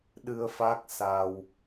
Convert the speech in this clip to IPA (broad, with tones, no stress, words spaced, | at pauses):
ɗɨ˧ə̯ fa˦˥k̚sa˧w